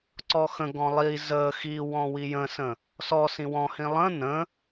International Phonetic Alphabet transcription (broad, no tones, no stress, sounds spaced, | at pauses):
ǀ ɔ x ə̃ ɡ ɔ̃ lˠ i z ə x i w ɔ̃ w i j ə̃ s ə̃ | s ɔ s ĩ w ɔ̃ h ĩ lˠ ə̃ n ə̃